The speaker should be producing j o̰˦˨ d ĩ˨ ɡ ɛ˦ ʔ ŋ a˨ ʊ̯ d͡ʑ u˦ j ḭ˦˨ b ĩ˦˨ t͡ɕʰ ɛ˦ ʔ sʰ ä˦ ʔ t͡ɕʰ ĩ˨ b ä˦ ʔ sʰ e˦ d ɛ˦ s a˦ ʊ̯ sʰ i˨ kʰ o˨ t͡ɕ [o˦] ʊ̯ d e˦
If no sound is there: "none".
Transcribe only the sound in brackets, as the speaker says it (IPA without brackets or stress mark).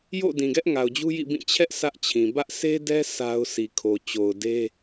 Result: o˨